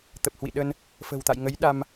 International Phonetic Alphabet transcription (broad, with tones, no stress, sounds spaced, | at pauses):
t̪ ə˨˩ p̚ h w ḭ˧˨ ɗ ə˧ n | f ə̤˨˩ w t̪ a̰˧˨ j ŋ ə˨˦ j ɗ a˧ m